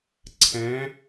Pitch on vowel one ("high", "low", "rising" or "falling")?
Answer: rising